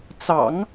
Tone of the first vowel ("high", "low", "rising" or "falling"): low